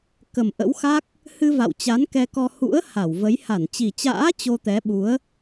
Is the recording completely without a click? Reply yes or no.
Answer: yes